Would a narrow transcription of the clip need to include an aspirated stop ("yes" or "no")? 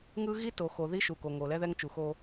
no